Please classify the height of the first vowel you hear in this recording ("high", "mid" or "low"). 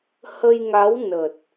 mid